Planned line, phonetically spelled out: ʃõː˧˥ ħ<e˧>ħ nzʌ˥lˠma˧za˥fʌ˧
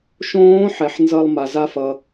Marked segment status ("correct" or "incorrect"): incorrect